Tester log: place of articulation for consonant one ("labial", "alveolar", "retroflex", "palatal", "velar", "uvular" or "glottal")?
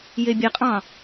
palatal